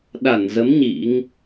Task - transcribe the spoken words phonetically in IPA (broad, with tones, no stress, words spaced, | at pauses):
ɗa˧˩nzə˨˦m ɲḭ˧˥ŋ